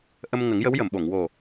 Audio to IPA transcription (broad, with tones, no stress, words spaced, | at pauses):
ʔə˧m ŋə˨˩˦ŋjə˧˥wjə˨˩˨mɓo˨˩˨ŋ wo˨˩